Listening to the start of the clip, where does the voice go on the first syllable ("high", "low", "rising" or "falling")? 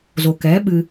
low